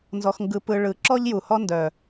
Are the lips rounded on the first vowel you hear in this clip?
yes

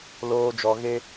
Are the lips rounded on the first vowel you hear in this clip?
yes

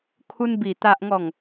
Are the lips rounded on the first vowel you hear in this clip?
yes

